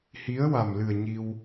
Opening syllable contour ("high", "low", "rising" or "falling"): rising